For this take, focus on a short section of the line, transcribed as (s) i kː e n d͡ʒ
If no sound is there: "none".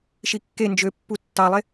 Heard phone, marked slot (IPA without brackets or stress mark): ʃ